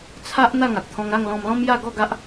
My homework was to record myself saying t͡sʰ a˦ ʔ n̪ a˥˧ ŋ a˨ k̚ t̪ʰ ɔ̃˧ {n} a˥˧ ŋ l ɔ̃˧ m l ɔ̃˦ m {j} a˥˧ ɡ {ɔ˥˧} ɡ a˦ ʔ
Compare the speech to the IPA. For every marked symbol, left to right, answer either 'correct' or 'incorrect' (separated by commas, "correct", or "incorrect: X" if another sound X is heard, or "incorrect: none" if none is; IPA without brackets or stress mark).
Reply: incorrect: ŋ, correct, correct